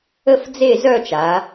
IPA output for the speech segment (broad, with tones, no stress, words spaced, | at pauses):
ə˥fd͡ze˥˧zœ˥˧t͡ʃa˩˧